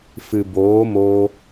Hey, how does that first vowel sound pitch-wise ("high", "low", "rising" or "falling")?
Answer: low